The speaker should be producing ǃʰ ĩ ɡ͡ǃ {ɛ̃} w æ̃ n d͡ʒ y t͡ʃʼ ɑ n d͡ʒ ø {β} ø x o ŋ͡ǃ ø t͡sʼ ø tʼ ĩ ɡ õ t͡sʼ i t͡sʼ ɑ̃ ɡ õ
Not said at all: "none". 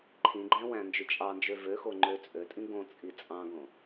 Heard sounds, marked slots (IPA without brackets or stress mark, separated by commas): æ̃, v